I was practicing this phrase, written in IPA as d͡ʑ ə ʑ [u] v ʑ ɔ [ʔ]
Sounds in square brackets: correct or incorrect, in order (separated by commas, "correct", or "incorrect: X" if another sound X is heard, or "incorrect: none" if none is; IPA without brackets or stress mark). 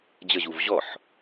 correct, incorrect: ħ